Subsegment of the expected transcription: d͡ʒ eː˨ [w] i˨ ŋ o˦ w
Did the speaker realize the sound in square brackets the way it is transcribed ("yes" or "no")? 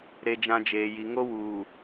no